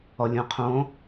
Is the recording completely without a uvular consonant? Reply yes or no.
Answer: no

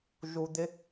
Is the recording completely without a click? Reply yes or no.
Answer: yes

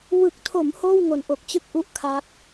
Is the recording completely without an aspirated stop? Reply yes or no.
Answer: no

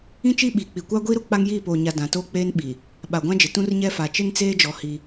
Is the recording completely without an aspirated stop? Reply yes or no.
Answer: yes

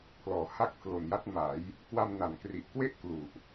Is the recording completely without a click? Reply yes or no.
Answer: yes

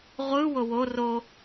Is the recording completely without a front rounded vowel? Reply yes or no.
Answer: yes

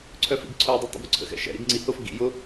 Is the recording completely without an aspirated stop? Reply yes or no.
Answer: no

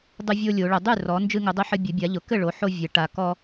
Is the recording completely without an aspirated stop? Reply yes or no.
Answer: yes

